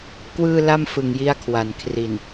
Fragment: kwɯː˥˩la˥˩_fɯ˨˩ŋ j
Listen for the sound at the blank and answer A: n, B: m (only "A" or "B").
B